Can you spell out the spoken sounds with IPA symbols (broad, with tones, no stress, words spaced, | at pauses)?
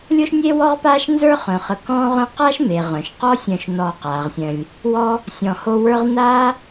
lʲo˥ʃnʲe˥wɔ˥ʁ paː˥ʃnzə˞˥χœ̃˩χə˨ kɔ̃ː˦ʁœ̃˦qa˥ʃme˩ ʁœ̃˩ʃqɔ˥ sʲœ̃˨ʃnɔː˨ qaː˩ʁsʲœ̃˨lʲ | wɔ˥ | sʲɔ̃˨ ho˦ wə˞˦ʁnaː˥